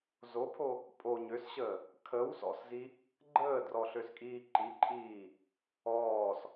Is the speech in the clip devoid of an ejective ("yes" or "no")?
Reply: no